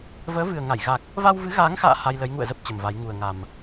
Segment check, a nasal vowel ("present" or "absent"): absent